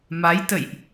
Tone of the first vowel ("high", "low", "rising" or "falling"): rising